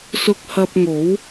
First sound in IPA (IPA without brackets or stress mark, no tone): s